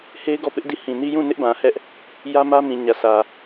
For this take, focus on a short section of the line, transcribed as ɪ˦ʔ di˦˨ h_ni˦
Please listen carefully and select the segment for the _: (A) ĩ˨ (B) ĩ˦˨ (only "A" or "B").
A